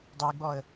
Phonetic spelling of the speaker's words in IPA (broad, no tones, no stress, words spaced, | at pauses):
dˤiɡ͡bɔə̯